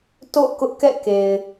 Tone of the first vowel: falling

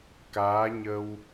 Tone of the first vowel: rising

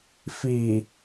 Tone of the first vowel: low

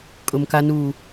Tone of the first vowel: low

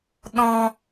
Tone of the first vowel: low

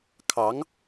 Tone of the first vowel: rising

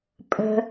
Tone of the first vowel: low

